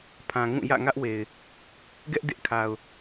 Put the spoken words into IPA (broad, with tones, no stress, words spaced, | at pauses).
pʰã˨ŋũ˦˨ jä̰˦˨ŋä˦ʔwe˨ɪ̯ | ɡɛ˦ʔ dɪ˦ʔkʰa˨ʊ̯